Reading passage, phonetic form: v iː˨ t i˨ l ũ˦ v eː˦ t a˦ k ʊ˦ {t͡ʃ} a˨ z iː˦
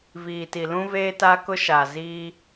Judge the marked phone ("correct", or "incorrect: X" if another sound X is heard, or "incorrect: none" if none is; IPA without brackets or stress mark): incorrect: ʃ